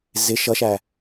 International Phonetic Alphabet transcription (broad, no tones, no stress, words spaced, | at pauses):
zɪ ʃʌʃæ